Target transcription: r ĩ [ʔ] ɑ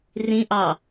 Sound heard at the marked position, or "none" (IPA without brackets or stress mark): ʔ